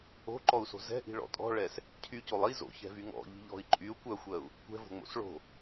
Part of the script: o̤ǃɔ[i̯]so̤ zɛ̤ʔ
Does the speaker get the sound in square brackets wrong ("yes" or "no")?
yes